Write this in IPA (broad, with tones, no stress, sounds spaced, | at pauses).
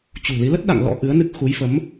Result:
t͡ɕ ṳ˨˩ l i˨˦ l ə˦˥ t̚ ɗ a̰˧˨ ŋ l ɔ̰˧˥ ʔ ɨ˨˦ ə̯ n ɨ˦˥ k̚ x u˨˦ j f ə˨˦ m